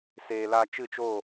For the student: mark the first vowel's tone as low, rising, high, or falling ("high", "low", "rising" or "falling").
low